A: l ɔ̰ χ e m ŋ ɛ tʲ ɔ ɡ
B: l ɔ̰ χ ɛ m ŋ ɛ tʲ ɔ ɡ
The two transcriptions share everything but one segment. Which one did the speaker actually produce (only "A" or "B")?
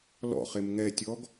A